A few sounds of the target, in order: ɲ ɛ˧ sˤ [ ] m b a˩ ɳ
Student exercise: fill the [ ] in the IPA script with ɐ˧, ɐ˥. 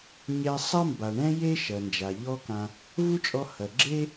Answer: ɐ˥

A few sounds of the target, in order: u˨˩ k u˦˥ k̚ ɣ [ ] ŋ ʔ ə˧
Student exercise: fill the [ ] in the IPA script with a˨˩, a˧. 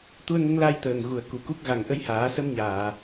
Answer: a˨˩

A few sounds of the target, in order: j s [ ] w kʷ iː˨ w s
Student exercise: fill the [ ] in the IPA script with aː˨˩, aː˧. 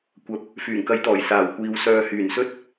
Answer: aː˨˩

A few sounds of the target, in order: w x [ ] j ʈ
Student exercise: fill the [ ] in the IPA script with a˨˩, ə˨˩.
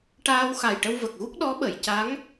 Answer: a˨˩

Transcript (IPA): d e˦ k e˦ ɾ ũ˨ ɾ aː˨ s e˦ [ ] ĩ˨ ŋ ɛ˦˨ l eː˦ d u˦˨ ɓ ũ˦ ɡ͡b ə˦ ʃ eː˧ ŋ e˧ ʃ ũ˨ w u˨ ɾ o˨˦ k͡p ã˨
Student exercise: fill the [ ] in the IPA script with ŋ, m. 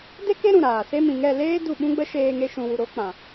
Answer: m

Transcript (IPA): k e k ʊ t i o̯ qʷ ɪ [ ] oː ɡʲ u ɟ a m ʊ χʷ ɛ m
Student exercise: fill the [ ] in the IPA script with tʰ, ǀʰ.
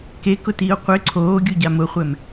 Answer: ǀʰ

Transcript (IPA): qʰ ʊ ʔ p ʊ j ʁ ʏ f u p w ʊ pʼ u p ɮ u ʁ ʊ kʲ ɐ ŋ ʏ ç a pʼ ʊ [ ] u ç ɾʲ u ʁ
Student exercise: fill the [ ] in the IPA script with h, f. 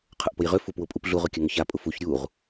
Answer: f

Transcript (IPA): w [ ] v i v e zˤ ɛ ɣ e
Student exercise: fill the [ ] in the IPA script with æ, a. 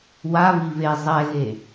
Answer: a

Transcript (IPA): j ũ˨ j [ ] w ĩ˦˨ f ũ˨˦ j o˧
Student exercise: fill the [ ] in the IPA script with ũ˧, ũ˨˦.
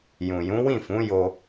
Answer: ũ˨˦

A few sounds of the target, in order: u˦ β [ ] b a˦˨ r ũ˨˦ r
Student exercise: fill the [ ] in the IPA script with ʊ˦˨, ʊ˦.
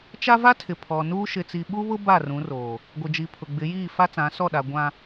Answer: ʊ˦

